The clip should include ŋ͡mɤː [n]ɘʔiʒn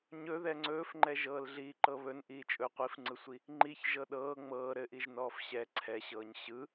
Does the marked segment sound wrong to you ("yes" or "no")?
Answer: yes